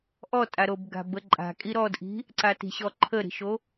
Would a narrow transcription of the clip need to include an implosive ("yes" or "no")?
no